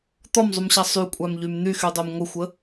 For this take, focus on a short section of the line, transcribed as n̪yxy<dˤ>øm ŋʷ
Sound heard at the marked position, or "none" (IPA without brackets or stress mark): dˤ